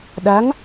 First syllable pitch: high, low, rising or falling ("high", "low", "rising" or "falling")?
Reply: rising